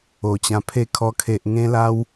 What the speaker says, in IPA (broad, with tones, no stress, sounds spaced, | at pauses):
o˨˩ t͡ɕ ã˧ pʰ e˥˧ kʰ ɔ˧ kʰ e˨ ʔ ŋ ẽ˦ l a˧ w